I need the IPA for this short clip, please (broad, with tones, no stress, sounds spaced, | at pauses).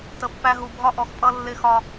t ə˨ pː æ˦ ɦ u˨ bʱ ɒ˦ ʔ ɔ˨ x pʼ ʌ˦ lː ɪ˦˨ x ɒ˦